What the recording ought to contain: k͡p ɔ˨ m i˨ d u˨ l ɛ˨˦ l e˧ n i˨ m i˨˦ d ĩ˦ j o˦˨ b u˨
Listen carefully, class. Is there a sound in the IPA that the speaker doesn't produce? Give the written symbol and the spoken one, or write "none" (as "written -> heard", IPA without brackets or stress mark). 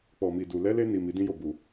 none